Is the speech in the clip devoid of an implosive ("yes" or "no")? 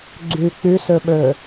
no